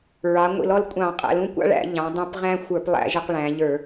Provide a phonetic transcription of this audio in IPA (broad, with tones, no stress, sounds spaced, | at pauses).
ɹ ɑ˩˧ ŋʷ ḭ˧˩˧ l ɔ˦ l kʷʼ ɑ̃˧˩˧ qʼ æ̰˩˧ l ũ˦ kʷ ɑ̰˦ ɭ æ̰˧˩˧ ʎ ɑ̃˩˧ dˤ ũ˧˩˧ p ʁ æ̃˦ xʷ ə˞˧˩˧ p lˠ æ̰˧˩˧ ʒ ə˧˩˧ q ɭ æ̃˩˧ ʎ ə˞˧˩˧